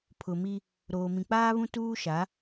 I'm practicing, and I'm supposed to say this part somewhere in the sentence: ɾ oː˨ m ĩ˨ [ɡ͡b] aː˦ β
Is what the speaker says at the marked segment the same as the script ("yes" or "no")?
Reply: no